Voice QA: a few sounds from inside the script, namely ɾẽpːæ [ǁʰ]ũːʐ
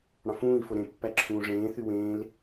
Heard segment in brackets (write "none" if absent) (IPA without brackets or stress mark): ǁʰ